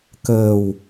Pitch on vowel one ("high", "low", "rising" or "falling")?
low